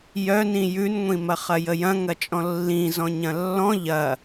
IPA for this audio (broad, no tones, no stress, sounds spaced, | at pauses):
j œ n ĩ j ʉ n ŋʷ ĩ m ɐ χ ɐ j ə j ɐ̃ ŋ ɐ t͡ʃʼ ɔ̃ lː ĩ z ɔ̃ ɲ ɐ̃ lː ɔ̃ ʎ ɐ